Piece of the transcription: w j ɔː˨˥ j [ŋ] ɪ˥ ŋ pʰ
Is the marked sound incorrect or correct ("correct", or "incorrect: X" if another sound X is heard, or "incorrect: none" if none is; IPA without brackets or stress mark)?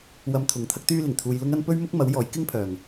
incorrect: k